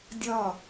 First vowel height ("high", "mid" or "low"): low